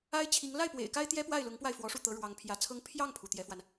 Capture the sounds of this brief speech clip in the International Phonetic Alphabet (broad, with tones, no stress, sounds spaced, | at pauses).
a˥ ɪ̯ t͡ɕʰ i˧˥ ŋ l a˥˩ ɪ̯ p w ḛ˨˩ ɪ̯ k a˥ ɪ̯ t̪ j ɛ˥ p w a˥˩ ɪ̯ l ʊ˧˥ ŋ p w a˥˩ ɪ̯ f w ɔ˧˥ ʂ u˥˩ t̪ ɤ˧˥ ɻ w ɑ˧˥ ŋ pʰ j ä˧˥ t͡sʰ ɤ˥ ŋ pʰ j ɑ˥˩ ŋ pʰ u˩ t̪ j ɛ˧˥ f w a˧ n